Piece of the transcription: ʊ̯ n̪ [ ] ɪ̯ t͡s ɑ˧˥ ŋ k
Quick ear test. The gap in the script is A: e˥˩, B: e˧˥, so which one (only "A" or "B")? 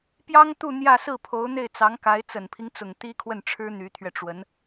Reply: A